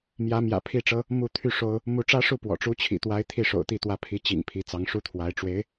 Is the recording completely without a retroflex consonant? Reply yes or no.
no